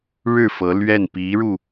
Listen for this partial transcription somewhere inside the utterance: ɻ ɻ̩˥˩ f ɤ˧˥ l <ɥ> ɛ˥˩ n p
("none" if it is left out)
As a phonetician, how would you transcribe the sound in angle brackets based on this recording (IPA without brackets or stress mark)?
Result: ɥ